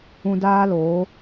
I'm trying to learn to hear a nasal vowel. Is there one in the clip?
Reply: yes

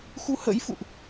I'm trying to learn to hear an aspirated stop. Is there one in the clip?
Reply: no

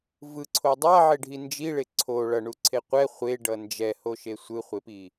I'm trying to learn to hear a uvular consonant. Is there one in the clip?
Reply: yes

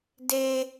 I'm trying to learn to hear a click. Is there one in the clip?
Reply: no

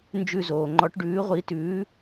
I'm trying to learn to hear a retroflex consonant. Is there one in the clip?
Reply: yes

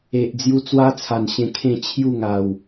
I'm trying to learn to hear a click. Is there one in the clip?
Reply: no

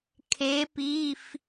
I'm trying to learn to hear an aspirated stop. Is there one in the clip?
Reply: yes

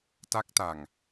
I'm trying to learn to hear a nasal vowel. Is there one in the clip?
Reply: no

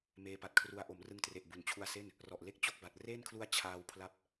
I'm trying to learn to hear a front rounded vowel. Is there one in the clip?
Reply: no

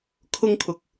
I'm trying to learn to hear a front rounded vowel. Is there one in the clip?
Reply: no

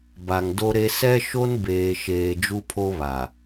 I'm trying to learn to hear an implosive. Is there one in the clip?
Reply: no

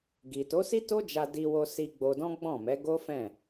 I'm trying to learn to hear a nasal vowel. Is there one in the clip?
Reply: yes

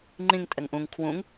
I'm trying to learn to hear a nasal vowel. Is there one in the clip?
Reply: yes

